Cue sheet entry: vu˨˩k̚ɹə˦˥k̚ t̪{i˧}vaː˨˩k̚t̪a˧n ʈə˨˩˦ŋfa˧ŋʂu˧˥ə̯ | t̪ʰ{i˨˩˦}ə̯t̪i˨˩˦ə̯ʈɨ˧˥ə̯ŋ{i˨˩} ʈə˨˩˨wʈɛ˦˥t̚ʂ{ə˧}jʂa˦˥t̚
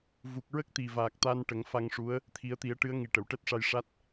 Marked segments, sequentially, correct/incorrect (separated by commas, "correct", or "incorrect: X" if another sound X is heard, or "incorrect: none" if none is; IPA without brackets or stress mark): incorrect: i˨˩, correct, correct, incorrect: a˧